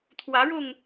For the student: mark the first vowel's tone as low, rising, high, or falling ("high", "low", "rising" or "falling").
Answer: rising